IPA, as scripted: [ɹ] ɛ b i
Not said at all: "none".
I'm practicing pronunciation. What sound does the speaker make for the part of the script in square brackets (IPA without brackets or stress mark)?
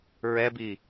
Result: ɹ